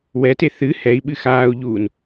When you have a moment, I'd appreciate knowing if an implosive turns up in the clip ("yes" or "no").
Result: yes